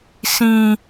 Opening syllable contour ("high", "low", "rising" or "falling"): high